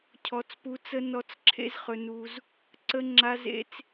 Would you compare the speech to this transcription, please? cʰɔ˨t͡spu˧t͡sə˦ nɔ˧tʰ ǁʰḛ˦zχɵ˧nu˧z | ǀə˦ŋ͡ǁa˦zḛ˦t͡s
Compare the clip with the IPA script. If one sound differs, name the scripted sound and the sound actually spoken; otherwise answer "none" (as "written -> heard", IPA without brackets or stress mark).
tʰ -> t͡s